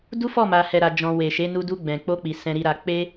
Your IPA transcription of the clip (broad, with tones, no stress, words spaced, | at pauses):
du˦fɔ˦˨ma˨ hɛ˨ɾa˨d͡ʒɔ̃˨ we˨ʃe˨˦nu˧ du˧ɡ͡bɛ̃˨k͡po˧k͡pi˨ sɛ̃˨ɾi˨ɾa˨ k͡pe˧